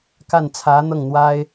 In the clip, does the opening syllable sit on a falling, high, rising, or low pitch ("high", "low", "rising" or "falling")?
falling